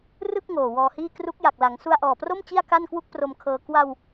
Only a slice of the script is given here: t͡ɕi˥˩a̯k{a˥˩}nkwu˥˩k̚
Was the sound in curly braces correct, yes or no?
yes